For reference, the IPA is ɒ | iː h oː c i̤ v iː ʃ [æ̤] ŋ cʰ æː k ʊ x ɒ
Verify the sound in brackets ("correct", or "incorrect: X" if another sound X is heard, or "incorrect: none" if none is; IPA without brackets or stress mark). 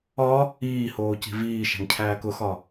correct